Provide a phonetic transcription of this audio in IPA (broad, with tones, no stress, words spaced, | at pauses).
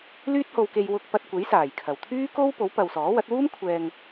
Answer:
lyː˥t̚ho˧wke˧j wʊ˧k̚pɐ˧t̚ kʷe˨˥jsaː˨˩jkʰɐ˨˩w t̪ʰyː˥ko˥w po˨˥wpɐ˨w sɔː˨˥wɐ˨˥t̚ wuː˥m kʷʰɛː˧ŋ